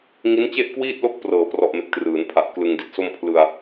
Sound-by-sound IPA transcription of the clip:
ŋi˦˥nt͡ɕe˥˩ʔkwiː˥˩t̚lo˥˩k̚ prɤː˨˩prɔ˨˩ʔme˨˩k̚ trɯː˩˦npʰa˨˩ʔ klɯ˧ŋdi˥˩t̚so˥˩m pʰlɯ˧a̯

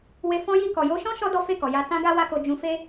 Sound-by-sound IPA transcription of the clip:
we˧ fɔ̃˦ji˦˨ kɔ˨jo˧ʃɔ̃˦ ʃɔ˦dɔ˦fe˦˨kɔ˨ ja˧ tã˦ɡa˦ wa˦ko˧ d͡ʒũ˧ fe˦

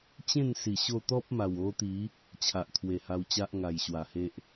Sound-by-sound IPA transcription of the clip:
t͡ɕẽ˥˧nsi˨˩ ɕo˥˧ t̪ɔ˦p̚ma˨˩wo˧t̪i˨˦ | t͡ɕʰa˨ʔt̪ʰwe˨˩ha˧wt͡ɕa˦ʔ ŋa˨˩jɕwa˨˩he˦ʔ

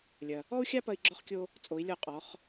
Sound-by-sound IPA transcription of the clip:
lʲɐ˩ | ɔ˥u̯xʲa˥ pɐ˥i̯ɡ͡ǁɔ˥χkʲo˥ | t͡sʼo˩˥i̯ lʲɔ˥˩qʼɔ˩˥χ

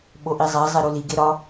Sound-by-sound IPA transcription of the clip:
ɓoʔizˤæ zˤeɾuli ɡeɾɒ

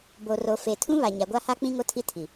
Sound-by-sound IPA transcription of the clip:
bo˨ro˨fe˨tʰũ˦ βa˨ɲa˨ɡʷa˦ha˦ k͡pĩ˦ŋo˦tʰi˦ tʰi˨

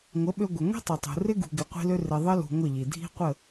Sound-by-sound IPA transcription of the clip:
ŋʷə˨˦ɓø˧ ɡʷɪ˨ŋʷi̤˦tˤɪ˨tˤṳ˨ rɪ˦ ɡṳ˧ɡɪ˧qʷi̤˦lø˦ rɪ˨ðˤə˦ lṳ˧ŋʷə˦˨ʎi˨ dʱi̤˦ qʷə˦˨

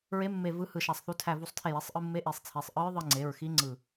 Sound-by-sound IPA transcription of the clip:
ɹe˧˥mːe˧˩ vɯ˧˥hɯ˧˩ʃæ˧˩sˤθu˧ tʰæ˧˩vu˧˩sˤtʰe˧˩je˩˧˩sˤ ʔɯ˧mːe˧˥ ʔi˩˧˩sˤt͡sʰi˩˧˩sˤ ʔɯ˧˥ɹðˤɯ˧ŋ͡ǀe˩˧˩ɹxi˧˥ ŋ͡ǀɯ˧˩

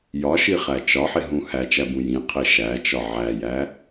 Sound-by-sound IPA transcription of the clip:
jɒʃiχæ t͡ʃɒħeɦũ hæt͡ʃæbũ jĩqʰe ʃæt͡ʃɒ ʕæjæ

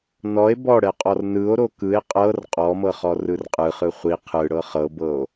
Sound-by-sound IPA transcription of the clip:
nɔe̯ bɔɽɛqʼɔr nɯo̯ɾo kɯe̯ qʼɤr qʼɔmɤχɔ rɯrqʼɯχɯ χʷi qʰɯɽɤ χɤbɤo̯

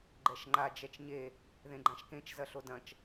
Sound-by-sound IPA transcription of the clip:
ɡ͡ǃɛʃŋ͡ǃa d͡ʒɛt͡ʃɲe | ðẽɡ͡ǃãʃkẽt͡ʃ zɐɬodɐ̃t͡ʃ

